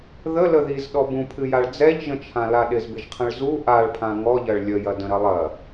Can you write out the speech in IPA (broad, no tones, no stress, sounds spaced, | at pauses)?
ð ə l ə ð i z ɗ ɔ b ũ pʰ ɨ j a ɭ d͡z ɛ ʎ ʒ ə̃ t͡ʃʰ ã l a ɗ ɪ z b ɪ ʒ qʰ ə̃ ɭ z u ʔ a ɭ pʰ ã ŋ ɔ ʎ ɐ ɭ lʲ ə j ɐ d ə̃ ɾ ɐ lˠ ɐ